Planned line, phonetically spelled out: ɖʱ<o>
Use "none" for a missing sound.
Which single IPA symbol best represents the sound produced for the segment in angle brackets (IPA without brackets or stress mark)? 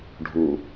u